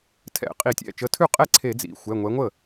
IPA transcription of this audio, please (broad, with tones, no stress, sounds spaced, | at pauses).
tʰ ɛ̰˧˩˧ qʼ i˧˩˧ tʲ ɛ̰˩˧˩ t͡ʃ ə˨˦ tʰ ʉ˥˩ qʼ ɛ˥˩ ǀʰ e˧˩˧ d͡z ḭ˩˧˩ xʷ ɛ˩˧˩ ŋʷ ɛ˨˦ ŋʷ ə˥˩